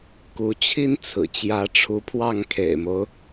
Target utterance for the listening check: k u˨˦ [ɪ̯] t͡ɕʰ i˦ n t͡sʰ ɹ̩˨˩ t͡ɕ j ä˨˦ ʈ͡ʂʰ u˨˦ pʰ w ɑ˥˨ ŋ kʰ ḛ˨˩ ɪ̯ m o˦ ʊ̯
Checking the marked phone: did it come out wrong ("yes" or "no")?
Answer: yes